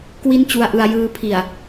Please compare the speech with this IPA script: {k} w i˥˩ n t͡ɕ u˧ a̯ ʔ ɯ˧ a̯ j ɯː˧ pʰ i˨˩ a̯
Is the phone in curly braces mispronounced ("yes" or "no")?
no